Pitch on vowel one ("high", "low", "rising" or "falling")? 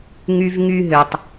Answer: high